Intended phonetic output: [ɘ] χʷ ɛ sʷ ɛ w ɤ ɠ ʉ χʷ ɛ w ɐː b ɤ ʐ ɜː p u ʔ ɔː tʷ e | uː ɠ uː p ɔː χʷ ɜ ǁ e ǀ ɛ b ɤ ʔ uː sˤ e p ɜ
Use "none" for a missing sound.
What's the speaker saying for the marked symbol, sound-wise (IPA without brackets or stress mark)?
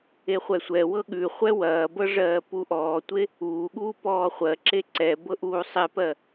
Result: e